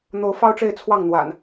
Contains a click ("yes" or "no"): no